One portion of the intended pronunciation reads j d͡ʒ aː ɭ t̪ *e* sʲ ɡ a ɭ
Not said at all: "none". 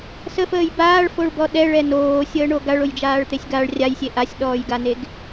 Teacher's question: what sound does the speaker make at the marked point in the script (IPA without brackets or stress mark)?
e